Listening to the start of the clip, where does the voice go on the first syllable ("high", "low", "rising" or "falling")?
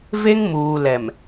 high